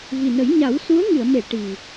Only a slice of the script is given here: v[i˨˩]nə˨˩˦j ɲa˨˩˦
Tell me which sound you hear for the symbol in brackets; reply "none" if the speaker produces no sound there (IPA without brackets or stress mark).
i˨˩